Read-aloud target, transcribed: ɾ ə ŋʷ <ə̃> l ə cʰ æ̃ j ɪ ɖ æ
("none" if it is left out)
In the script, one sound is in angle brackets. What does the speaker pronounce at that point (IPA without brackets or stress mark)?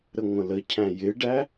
ə̃